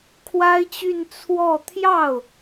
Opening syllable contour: high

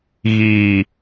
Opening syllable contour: falling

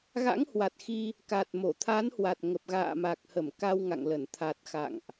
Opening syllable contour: rising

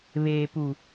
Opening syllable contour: low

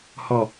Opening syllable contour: low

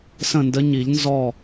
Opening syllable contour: falling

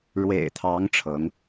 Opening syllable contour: low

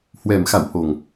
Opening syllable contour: low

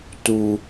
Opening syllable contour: low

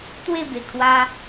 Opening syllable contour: falling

